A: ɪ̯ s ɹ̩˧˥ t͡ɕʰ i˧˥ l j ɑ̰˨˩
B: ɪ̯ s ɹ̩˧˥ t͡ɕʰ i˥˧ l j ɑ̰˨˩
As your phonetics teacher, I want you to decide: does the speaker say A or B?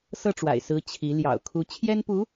A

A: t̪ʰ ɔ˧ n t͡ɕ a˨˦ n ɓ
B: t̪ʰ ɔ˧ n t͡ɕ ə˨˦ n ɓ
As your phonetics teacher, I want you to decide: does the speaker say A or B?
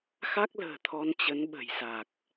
B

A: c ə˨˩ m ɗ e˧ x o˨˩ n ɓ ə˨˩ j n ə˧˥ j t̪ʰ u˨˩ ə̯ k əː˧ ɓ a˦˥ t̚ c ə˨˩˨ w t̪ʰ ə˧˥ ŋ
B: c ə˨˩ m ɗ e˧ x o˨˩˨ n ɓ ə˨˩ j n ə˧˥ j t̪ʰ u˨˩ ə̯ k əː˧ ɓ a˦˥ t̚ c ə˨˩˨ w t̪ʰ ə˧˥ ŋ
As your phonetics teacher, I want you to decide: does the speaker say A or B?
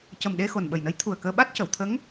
A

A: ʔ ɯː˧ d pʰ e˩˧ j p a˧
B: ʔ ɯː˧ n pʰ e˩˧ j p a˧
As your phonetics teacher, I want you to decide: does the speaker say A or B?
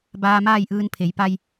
B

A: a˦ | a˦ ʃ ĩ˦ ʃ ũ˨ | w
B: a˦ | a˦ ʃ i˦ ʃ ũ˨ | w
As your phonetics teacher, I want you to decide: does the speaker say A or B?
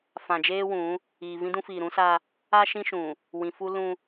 A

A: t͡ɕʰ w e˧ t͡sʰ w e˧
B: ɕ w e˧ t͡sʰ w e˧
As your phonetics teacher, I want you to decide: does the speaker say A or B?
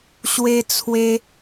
B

